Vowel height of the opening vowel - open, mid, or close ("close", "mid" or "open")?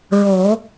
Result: mid